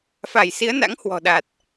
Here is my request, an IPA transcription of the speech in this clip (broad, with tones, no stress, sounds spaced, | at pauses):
f a˧˩ j s i˨˦ ə̯ n a̰˧˥ ŋ h w ɔ̤˨˩ ɗ a˨˩ t̚